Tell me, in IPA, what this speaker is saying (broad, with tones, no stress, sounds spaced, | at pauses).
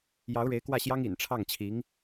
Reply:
j ɑ˧˥ ʊ̯ ɻ e˧˥ ɪ̯ k w ä˥˩ ɕ j ɑ˥ ŋ ḭ˨˩ n ʈ͡ʂʰ ɑ˥˩ ŋ t͡ɕʰ i˧˥ ŋ